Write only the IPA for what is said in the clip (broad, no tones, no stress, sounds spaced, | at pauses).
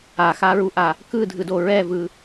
a x a ɹ u ʔ a | k ɯ dʱ ɯ d o ɹ ɛ v ɯ